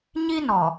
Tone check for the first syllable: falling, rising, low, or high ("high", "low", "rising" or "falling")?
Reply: high